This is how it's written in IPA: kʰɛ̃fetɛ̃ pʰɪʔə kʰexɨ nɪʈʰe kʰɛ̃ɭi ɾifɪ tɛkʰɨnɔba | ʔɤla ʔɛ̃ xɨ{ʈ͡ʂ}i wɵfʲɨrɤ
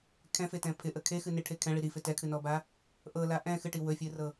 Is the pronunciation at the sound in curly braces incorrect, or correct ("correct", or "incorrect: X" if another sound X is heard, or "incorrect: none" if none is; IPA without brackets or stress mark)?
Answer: incorrect: ʈ